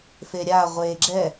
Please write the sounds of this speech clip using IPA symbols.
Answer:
f e ɾʲ a ʁʷ e ɡ͡ǁ ɛ

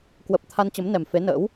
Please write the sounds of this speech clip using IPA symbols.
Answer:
k w ə˨˩ p̚ t̪ʰ a˧ n t͡ɕ ə˨˦ m n ɛ˨˩ m f e˨˦ n ə̰ː˧˥ w

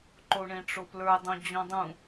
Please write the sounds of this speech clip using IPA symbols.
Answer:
ǃ o ɳ ẽ ʈ͡ʂ o p l ə˞ dˤ õ d͡ʑ ɔ̃ dˤ ũ

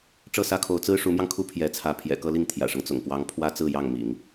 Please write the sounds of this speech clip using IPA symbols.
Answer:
ʈ͡ʂ ɤ˥˩ s ä˥ kʰ o˧˥ ʊ̯ t͡s ɹ̩˥ ʂ u˧˥ m j ɑ˧ ŋ kʰ u˥ pʰ j ɛ˧˥ t͡sʰ ä˧˥ pʰ j ɛ̰˨˩ k ɤ˥˧ l i˥˩ ŋ t̪ʰ j ä̰˨˩ ʂ ɤ˦ ŋ t͡s ʊ̰˨˩ ŋ p w ɑ˧˥ ŋ pʰ w ä˥ t͡s ɹ̩˥˧ j ɑ˥˩ ŋ m ḭ˨˩˦ ŋ

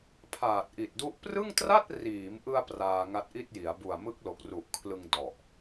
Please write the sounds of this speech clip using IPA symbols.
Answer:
pʰ aː˨˩ t̚ ʔ i˨˩ t̚ d u˦˥ ʔ p r ɯ˥˩ ŋ t r a˥˩ t̚ r iː˩˦ m ʔ ɯ˧ a̯ p r aː˧ ŋ a˦˥ t̚ ʔ i˥˩ t̚ j i˩˦ a̯ b u˨˩ a̯ m ɯ˦˥ k̚ l o˨˩ k̚ r u˨˩ ʔ kʰ l ɯ˧ ŋ d ɔ˨˩ ʔ

